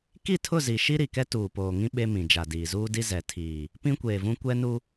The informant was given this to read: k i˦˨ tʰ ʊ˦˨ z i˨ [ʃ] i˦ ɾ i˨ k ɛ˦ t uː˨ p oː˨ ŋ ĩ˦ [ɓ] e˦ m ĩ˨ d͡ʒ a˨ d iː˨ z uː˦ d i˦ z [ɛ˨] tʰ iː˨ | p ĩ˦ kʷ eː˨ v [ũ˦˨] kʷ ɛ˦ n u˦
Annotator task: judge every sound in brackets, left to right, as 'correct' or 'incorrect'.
correct, correct, correct, incorrect

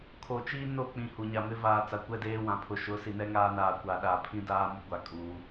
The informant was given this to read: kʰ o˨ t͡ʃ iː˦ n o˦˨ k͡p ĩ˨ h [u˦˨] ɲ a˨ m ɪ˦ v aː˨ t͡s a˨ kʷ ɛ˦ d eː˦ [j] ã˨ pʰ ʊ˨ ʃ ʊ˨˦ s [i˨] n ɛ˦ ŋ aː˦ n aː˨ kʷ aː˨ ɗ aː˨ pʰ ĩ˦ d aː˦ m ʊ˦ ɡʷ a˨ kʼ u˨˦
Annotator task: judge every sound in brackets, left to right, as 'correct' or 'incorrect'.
incorrect, incorrect, correct

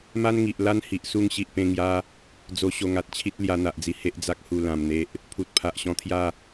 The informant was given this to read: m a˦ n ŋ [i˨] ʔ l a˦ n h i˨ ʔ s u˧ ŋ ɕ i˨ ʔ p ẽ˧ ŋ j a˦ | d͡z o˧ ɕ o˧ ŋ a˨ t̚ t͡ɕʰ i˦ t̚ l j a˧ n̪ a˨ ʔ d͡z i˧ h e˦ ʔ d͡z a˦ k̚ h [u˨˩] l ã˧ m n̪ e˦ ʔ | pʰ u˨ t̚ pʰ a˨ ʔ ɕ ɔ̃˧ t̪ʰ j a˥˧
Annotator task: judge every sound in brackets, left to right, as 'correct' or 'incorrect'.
correct, incorrect

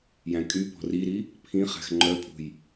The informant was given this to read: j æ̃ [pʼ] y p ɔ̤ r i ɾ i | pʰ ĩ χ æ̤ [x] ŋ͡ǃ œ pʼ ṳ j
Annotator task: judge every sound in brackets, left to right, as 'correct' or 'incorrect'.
incorrect, correct

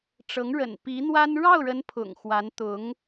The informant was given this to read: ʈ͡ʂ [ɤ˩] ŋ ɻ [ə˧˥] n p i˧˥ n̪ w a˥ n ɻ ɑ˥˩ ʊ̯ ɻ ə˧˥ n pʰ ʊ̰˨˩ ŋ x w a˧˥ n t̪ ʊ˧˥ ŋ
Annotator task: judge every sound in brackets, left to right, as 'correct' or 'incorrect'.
incorrect, incorrect

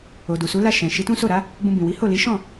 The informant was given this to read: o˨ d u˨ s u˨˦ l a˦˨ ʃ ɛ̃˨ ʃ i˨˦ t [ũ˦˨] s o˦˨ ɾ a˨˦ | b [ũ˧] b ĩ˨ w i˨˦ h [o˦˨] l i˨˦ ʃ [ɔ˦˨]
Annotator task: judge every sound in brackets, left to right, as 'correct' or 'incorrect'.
incorrect, correct, correct, incorrect

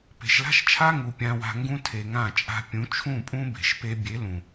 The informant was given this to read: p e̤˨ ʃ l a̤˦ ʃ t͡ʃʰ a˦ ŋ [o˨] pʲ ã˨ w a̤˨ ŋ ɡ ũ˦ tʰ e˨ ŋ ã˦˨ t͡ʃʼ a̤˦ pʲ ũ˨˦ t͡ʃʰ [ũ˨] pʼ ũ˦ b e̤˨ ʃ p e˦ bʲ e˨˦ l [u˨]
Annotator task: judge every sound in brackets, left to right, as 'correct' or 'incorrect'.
incorrect, incorrect, incorrect

